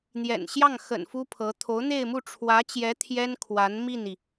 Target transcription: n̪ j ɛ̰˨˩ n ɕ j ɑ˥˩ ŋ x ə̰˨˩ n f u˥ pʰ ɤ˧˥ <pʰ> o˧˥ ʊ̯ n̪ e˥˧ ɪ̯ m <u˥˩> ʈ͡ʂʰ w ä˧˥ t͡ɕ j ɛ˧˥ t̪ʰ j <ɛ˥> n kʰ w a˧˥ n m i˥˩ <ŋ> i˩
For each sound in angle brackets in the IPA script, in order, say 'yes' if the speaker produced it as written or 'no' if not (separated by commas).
no, yes, yes, no